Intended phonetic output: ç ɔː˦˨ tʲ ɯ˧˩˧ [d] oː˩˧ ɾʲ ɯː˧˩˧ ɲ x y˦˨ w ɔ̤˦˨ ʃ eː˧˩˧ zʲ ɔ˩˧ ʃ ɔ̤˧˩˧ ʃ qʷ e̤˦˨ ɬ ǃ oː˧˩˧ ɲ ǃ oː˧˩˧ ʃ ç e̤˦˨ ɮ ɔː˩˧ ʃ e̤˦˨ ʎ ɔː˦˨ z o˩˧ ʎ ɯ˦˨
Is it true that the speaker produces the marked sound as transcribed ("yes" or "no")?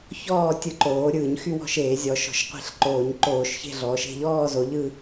no